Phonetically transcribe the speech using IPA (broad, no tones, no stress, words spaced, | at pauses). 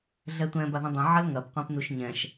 ɮɛtʷɛ̃ baðũdˤã ʕɐlŋɐp qʷẽpnuʃɲɛ̃ʃ